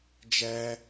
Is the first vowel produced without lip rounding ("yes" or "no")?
yes